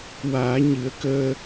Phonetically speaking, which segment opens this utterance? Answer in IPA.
w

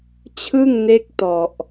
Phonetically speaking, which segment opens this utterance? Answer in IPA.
t͡ɕʰ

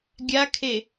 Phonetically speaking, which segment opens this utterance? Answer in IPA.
ɡʲ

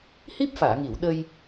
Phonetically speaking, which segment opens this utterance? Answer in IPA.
h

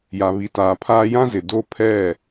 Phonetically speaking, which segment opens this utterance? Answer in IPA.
j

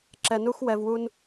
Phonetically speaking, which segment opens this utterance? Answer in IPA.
ǁ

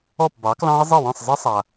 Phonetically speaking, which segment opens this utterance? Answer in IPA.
ɔ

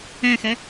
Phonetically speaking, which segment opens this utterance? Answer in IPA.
ɛ̃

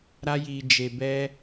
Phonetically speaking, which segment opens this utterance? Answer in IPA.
ɾ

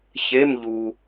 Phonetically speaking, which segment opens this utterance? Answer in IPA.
ç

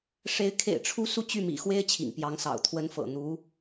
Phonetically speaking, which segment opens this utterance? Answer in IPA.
ʂ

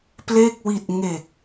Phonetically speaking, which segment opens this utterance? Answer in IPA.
p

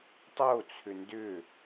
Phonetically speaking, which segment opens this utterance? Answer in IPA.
tˤ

